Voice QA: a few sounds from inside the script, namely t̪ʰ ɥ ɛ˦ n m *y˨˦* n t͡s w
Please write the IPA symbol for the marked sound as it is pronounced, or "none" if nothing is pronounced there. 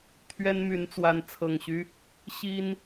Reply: y˨˦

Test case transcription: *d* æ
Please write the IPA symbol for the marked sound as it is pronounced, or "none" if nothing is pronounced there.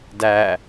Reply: d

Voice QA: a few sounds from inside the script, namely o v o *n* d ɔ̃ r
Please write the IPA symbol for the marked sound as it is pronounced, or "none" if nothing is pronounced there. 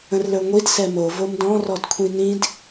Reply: m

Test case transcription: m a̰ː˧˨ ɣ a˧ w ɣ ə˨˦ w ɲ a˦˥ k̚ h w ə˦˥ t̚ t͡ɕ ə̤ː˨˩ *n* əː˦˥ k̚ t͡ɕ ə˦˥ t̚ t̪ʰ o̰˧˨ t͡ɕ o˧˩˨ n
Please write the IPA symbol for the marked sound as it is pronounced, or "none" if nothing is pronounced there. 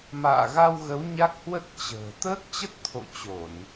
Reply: t̪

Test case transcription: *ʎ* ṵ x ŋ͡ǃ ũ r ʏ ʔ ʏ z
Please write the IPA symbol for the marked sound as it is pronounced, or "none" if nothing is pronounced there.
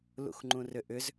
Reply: l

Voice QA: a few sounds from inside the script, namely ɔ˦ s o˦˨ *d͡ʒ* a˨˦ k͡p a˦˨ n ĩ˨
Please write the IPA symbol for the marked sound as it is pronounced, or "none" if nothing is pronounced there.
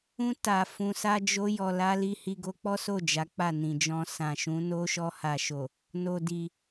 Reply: d͡ʒ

